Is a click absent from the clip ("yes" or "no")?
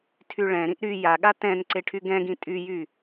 no